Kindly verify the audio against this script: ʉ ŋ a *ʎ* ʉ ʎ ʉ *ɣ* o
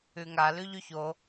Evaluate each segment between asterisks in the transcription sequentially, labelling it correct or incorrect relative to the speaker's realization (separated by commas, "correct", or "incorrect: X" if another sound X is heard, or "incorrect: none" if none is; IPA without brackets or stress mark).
incorrect: l, incorrect: ç